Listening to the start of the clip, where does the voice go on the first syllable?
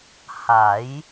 rising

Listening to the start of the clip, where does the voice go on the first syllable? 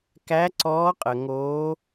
rising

